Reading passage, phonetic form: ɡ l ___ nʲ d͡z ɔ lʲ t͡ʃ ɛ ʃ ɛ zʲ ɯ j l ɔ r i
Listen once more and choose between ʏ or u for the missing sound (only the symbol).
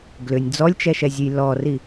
ʏ